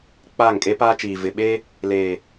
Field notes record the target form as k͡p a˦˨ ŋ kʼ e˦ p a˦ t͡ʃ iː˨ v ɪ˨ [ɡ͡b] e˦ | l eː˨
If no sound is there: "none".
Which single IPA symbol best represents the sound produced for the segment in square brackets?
ɓ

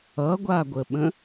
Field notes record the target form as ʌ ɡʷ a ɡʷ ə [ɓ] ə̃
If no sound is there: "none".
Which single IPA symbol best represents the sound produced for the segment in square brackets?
ɓ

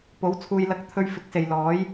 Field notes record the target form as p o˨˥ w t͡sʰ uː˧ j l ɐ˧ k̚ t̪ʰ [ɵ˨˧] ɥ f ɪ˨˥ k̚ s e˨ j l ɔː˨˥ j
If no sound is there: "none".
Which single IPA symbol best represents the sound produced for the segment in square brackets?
ɵ˧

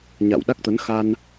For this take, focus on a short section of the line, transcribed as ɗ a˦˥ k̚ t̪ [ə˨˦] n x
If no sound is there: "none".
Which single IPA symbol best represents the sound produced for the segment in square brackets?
ə˨˦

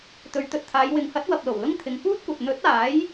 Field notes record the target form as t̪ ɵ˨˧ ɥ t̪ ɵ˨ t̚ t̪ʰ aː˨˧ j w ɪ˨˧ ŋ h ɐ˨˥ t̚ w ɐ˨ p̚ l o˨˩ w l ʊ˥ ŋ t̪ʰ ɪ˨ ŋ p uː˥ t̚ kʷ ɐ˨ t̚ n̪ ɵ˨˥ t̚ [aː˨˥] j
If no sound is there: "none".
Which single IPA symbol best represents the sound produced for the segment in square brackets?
aː˨˥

